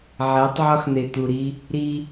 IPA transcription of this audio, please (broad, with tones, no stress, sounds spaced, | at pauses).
ʕ æ˨˦ tˤ ʕ ɒ˦ x n̪ e˨ t̪ u˨ ɾ i˦ | ɾ i˦